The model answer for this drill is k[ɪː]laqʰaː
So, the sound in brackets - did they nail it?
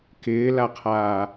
yes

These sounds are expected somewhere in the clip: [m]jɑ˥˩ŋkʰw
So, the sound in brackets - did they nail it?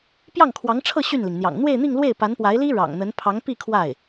no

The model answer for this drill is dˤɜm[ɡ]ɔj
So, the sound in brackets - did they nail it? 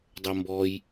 no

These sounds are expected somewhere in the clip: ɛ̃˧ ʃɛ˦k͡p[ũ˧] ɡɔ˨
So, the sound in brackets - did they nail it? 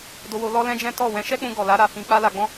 yes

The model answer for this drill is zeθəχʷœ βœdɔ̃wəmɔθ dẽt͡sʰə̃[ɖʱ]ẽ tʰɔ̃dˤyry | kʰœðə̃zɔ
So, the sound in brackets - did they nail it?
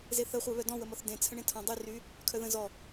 no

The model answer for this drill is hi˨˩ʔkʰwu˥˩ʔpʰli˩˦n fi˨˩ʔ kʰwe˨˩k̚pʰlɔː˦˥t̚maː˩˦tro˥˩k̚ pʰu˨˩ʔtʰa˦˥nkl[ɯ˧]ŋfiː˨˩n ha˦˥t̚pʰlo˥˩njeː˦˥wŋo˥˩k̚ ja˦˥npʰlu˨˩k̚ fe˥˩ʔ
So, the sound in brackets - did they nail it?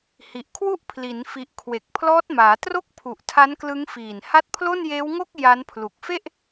no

